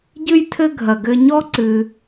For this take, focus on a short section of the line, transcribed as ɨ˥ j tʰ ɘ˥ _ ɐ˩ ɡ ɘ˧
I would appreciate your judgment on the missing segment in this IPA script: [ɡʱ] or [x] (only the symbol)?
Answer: ɡʱ